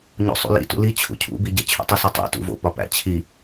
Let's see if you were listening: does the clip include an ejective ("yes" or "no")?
no